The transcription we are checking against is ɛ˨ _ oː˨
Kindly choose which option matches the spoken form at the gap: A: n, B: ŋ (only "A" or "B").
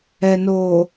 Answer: A